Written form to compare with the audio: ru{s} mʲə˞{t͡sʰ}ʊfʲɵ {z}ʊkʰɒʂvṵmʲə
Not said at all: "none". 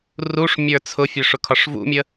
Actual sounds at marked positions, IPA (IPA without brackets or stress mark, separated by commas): ʂ, t͡sʰ, ʂ